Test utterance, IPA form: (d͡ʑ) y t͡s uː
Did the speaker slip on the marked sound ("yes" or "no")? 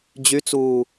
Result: no